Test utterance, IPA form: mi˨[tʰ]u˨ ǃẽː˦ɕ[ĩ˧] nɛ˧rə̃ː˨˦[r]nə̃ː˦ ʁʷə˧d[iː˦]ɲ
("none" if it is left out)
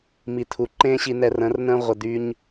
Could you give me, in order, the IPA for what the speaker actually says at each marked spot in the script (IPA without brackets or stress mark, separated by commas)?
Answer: tʰ, i˧, r, yː˦